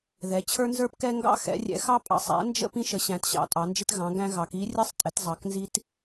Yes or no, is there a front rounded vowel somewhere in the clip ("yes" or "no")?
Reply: no